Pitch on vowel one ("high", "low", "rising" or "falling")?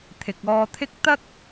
low